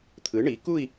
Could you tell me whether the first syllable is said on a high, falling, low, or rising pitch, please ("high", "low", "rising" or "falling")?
rising